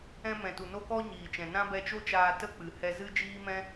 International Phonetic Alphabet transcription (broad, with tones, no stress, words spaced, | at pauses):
ɛ̃˧mɛ̃˨tu˨ no˦kɔ˦ɲiː˨t͡ʃɛ̃˨ nã˦ bɛ˧t͡ʃo˦t͡ʃaː˧ tə˦ k͡pɨ˨ hɛ˧zɨ˦d͡ʒiː˦mɛ̃˦